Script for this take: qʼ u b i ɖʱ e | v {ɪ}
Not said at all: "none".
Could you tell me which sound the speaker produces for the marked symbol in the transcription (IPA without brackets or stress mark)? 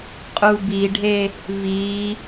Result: i